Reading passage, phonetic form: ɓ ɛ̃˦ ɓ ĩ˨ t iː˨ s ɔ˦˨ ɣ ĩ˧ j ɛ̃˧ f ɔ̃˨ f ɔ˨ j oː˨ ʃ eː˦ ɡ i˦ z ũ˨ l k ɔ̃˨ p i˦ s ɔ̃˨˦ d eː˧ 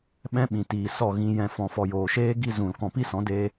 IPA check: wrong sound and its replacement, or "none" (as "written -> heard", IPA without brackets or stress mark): none